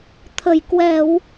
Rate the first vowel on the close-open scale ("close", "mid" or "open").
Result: mid